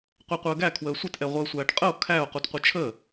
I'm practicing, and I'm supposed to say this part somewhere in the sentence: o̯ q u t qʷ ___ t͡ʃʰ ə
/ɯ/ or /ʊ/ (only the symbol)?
ɯ